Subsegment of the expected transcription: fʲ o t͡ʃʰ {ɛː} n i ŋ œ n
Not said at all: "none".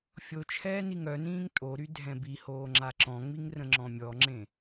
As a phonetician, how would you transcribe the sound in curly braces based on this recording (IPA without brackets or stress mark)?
ɛː